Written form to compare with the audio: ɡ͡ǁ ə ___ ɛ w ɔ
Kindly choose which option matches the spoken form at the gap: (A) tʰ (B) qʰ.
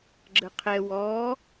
B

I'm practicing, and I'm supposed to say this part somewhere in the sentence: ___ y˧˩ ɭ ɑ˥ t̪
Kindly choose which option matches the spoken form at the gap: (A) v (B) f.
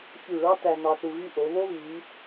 B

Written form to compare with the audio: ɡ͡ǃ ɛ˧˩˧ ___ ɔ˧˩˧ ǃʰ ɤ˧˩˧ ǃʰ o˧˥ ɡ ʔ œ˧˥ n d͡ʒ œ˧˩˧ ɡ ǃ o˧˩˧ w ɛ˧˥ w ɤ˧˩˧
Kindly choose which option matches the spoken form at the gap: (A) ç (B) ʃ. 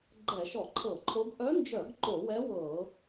B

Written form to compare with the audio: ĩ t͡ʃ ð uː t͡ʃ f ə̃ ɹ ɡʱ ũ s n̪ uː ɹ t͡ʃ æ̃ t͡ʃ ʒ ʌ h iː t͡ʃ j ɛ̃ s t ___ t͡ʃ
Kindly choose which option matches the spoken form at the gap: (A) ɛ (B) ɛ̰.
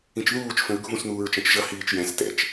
B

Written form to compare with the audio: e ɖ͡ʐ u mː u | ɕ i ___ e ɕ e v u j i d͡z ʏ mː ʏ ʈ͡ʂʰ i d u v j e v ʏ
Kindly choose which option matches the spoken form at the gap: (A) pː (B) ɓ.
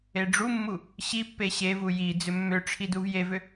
A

